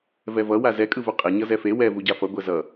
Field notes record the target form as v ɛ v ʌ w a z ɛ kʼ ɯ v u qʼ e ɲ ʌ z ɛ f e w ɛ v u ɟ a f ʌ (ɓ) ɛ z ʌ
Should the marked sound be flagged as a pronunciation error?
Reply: yes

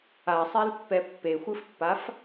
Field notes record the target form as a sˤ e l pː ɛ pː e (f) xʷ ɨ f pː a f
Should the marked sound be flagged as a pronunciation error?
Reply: yes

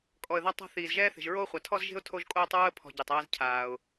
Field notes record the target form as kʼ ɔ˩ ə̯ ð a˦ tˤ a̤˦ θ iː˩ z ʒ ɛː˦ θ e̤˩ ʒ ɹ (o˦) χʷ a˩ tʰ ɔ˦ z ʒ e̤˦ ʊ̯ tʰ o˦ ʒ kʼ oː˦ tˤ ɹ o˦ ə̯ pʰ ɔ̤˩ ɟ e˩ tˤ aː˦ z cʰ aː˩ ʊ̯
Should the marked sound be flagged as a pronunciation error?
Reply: yes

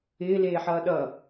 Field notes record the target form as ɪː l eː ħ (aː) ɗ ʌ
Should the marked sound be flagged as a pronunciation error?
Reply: yes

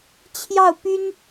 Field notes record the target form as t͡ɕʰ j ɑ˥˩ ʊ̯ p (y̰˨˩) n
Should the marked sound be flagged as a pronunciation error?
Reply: yes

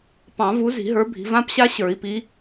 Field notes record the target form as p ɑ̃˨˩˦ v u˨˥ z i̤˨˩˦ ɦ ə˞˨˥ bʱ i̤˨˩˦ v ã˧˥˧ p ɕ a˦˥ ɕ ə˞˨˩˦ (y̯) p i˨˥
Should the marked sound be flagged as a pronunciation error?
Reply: yes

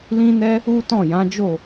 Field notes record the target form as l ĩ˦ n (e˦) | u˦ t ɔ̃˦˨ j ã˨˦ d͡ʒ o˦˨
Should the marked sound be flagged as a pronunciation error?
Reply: yes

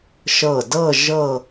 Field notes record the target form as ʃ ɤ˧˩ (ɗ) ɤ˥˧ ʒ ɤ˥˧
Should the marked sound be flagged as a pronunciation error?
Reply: yes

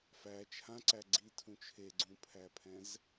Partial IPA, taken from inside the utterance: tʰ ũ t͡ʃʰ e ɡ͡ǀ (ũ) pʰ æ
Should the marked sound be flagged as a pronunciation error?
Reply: no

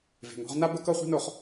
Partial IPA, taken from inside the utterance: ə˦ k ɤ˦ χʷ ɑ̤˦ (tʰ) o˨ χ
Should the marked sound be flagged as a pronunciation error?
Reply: yes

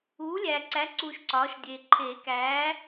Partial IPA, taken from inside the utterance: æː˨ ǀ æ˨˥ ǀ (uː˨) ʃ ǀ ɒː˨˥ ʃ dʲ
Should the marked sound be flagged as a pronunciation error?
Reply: no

